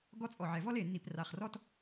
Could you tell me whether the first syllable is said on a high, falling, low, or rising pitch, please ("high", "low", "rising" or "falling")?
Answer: high